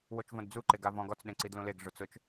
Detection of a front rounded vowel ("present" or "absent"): absent